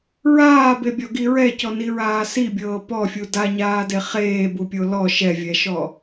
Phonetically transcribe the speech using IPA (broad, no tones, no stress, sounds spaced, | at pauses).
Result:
ɹ aː b e bʲ ɔ ɡ i ɹ ɛ c ɔ n i ɹ aː s i bʲ ɤː p ɔ fʲ u d a ɲ aː d e χ eː b u pʲ o l ɔ ʃ ɛ vʲ ɛ ʃ ɔ